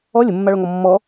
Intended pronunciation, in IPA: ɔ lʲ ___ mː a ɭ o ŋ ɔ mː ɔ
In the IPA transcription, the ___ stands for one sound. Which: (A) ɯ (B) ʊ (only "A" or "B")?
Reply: B